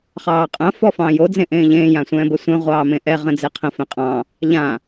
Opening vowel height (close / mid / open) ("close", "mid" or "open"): open